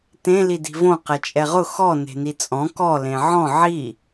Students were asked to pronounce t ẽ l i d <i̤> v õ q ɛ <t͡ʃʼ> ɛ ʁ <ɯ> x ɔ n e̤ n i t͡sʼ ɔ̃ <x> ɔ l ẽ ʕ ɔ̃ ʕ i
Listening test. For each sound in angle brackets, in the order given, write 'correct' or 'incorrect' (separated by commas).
correct, correct, incorrect, incorrect